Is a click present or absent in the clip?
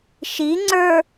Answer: present